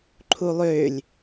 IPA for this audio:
ǃʰ u lˠ ʏː lʲ

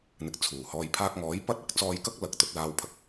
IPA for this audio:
n̪ ɪ˨ k̚ t͡sʰ uː˨˩ h ɔː˨ j pʰ aː˧ k̚ ŋ ɔː˨˥ j p ɐ˥ t̚ ɐ˧ k̚ t͡s ɔː˧ j k ɐ˥ k̚ l ɐ˨ k̚ t̪ ɵ˨˥ t̚ l aː˧ w pʰ ɐ˨ k̚

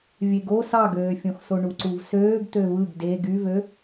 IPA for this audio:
vʲ e ɡ o s ɑ ɡ øː fʲ õ x s o ɳ u ǀ u v s øː ɡ t̪ ø v ɯ ɡ d e ɡ y v ø

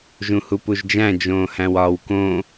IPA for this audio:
ʒ ũ h u p u ʒ d͡ʒ æ̃ d͡ʒ õː h æ̃ w ɒː w k õ

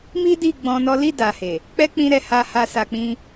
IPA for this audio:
m i˦ d i˦˨ ɡ͡b ɔ̃˧ n ɔ˦ l i˦˨ d a˨ h e˨ | k͡p ɛ˦ k͡p ĩ˧ ɾ ɛ˨ h a˧ h a˧ s a˧ k͡p ĩ˦

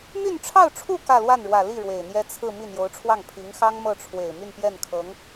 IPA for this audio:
m y˥˧ n ʈ͡ʂʰ ɑ˥˧ ʊ̯ ʈ͡ʂʰ u˥˧ k ä˥˧ l w a˥˩ n ɻ w ä˨˩ l i˥˩ ɻ w e˨˩ ɪ̯ n̪ j ɛ˥ t͡sʰ ɹ̩˥˧ m i˥˩ n̪ j o˧˥ ʊ̯ ʈ͡ʂʰ w ɑ˥˩ ŋ pʰ i˧˥ ŋ x ɑ˥ ŋ m ɤ˥˩ ʈ͡ʂʰ w e˨˩ ɪ̯ m y˥˧ n p j ɛ˥˩ n kʰ ɤ˧˥ ŋ

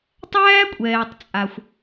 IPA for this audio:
tˤ æː˥ kʷʼ ɛː˩ tˤ t͡sʼ a˩ xʷ

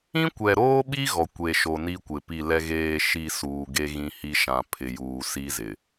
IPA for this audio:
ĩ˦ kʷ ɛ˨ ɾ oː˦ ɓ i˦ ɣ ɔ˨ kʷ e˨ ʃ o˨ n i˦ kʷ ɪ˨ p i˦˨ l ɛ˦ ɣ eː˦˨ ʃ i˦˨ s uː˨ ɡ e˦ ɣ ĩ˦ h i˦ ʃ ã˨ pʰ ɪ˨ j uː˨ s i˦ z ɪ˨

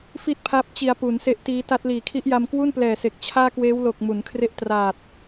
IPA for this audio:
f i˥˩ t̚ pʰ a˦˥ p̚ t͡ɕ i˧ a̯ p u˩˦ n s e˦˥ ʔ t iː˦˥ t a˦˥ t̚ l iː˨˩ kʰ i˦˥ ʔ j a˧ m k w u˥˩ n p l ɛː˨˩ s e˨˩ k̚ t͡ɕʰ aː˥˩ k w eː˦˥ w l o˨˩ k̚ m u˩˦ n kʰ r e˦˥ ʔ t r aː˨˩ t̚

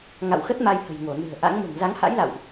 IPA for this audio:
ŋ a̰˧˨ w x ə˦˥ t̚ m a˧ j h ə̤˨˩ j ŋ o˧˩ n ɨ̤˨˩ ə̯ ʔ a̰˧˥ ŋ m o̤˨˩ ŋ z a˨˦ ŋ h a̰˧˥ j l a̰˧˨ w ʔ

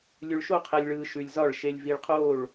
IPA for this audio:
lʲ ʉ˧ ɭ ʃ o˥˧ qʰ ɛ˧ lʲ ɭ ɯː˧ ʃ ʉ˧ lʲ z ɒ˥˧ ɭ ʃ e˧ lʲ v i˧ ɭ qʰ oː˥˧ ɭ

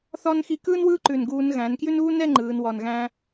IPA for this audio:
θ ɒ˥ n x i˧ k ɯː˥ n w ɯː˥ ǃ ʉ˧˩ n ɡ uː˧ n ɣ æ̃˩˧ n k j ʉ˥ n uː˥ n ɛ˥˧ ŋ͡ǃ ɯː˩˧ n w ɒ˧˩ n ɣ æ̃˥

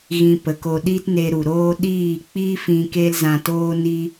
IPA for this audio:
ɣ ĩ˧ p ə˨ k o˧ ɗ i˦ t n e˧ ɾ u˨ ɾ oː˦ ɗ iː˦˨ k͡p i˦ f ĩ˧ k e˦ l z ã˧ t oː˦ n i˦

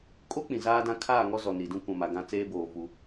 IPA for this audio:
kʼ o˦ k͡p ĩ˨ z aː˦ d ã˦ kʰ aː˦˨ ŋ ɔ˦ z ɔ˨ n i˨ d ũ˦ kʷ ã˨ m a˨ ɡ ã˦˨ t͡s eː˦ b oː˨ v u˦

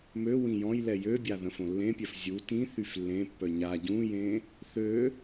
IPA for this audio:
m ø w ĩ j ɔ̃ j l ɛ j ø bʲ a ð ə̃ f õ lː ẽ pʲ œ f zʲ u t ĩ θ y f lː ẽ pː œ ɲ a ɟ ũ j ẽ | θ ø

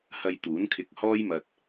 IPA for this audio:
h ɐ˧ j t̪ uː˨˥ n kʰ ɪ˧ k̚ h ɔː˥ j m ɐ˧ t̚

